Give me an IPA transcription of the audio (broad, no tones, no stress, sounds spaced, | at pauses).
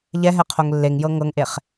ʎ ɛ ɦ ɛ qʰ o ŋ lː e ŋ j ɤ ŋ ɤ ŋ ʔ e χ